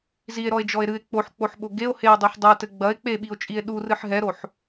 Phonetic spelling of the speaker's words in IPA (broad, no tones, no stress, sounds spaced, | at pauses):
z i e̯ ɾ ɔ e̯ d͡ʒ ɔ e̯ ɾ ɨ e̯ k͡p o ħ k͡p o ħ ɓ o ɡ e o̯ h e o̯ dˤ e ħ dˤ ɛ t ɘ ɡ͡b ɐ e̯ k͡p e ɓ i o̯ t͡ʃʼ i e̯ ɗ u r ɨ ħ ɦ ɛ ɾ o ħ